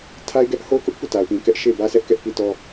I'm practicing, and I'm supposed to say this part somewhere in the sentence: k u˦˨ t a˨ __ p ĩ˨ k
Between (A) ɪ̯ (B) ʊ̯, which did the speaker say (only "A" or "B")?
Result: B